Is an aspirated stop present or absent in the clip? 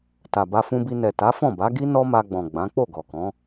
absent